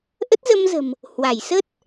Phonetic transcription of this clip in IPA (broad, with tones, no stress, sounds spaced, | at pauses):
ʔ ə˦˥ t̚ z ə˧ m z ə̤˨˩ m | h w a˧˩ j s ə˦˥ t̚